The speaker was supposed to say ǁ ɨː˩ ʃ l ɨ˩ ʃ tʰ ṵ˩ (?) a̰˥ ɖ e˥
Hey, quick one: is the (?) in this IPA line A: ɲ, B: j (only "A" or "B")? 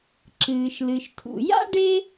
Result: B